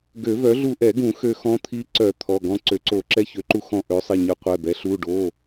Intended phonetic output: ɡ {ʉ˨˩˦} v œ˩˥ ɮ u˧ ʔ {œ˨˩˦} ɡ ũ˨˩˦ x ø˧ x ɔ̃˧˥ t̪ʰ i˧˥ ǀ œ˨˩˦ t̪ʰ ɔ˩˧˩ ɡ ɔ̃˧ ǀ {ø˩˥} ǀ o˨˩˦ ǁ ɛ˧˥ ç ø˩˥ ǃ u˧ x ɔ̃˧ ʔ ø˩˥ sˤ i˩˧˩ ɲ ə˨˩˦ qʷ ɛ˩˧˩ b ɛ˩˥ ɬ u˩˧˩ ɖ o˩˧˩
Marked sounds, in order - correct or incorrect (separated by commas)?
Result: incorrect, incorrect, correct